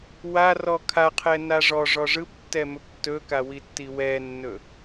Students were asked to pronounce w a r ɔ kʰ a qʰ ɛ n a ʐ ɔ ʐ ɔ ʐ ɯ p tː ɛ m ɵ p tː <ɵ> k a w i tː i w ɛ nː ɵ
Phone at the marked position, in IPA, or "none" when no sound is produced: ɵ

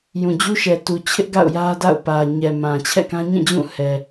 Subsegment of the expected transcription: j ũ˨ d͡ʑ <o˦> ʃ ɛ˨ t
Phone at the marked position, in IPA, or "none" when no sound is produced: u˦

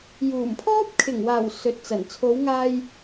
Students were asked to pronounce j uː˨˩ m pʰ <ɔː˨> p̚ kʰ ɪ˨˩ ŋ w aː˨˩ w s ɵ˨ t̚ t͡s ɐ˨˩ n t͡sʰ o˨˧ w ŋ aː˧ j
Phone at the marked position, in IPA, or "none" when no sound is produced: ɔː˥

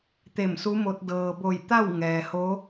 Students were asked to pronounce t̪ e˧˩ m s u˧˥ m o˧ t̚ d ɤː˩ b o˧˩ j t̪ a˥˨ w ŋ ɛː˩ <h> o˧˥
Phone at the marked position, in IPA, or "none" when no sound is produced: h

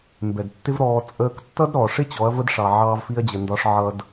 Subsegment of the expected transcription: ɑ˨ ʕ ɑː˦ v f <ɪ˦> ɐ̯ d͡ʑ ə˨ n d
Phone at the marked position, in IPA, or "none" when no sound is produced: i˦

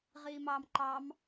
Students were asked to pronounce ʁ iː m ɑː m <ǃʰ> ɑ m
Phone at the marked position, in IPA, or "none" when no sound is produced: ǃ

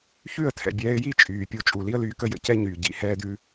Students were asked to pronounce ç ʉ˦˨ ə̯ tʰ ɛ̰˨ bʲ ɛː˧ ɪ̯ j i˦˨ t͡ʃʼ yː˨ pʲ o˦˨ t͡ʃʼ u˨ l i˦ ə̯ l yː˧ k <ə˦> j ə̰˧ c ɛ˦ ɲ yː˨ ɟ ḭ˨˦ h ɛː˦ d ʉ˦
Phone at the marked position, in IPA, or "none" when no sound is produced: ə˦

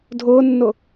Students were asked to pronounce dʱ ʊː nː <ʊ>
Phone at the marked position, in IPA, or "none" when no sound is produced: ʊ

